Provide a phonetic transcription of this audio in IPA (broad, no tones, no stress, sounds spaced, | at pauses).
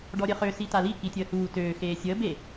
ɖ ɔ ɾʲ ə χ ø s i t a l i k i tʲ əː h uː t øː x eː sʲ əː b e